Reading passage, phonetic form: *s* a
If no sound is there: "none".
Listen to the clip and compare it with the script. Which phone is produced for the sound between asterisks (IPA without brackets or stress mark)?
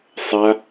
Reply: sˤ